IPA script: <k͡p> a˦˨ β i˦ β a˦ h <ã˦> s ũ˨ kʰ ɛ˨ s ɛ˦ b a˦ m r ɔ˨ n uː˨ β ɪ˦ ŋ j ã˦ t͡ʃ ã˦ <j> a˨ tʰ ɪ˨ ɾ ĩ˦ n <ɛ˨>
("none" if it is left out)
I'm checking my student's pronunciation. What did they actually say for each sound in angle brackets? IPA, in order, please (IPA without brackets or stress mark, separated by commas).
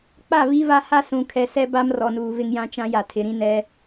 k͡p, a˦, j, ɛ˦